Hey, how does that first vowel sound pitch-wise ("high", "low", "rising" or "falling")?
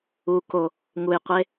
low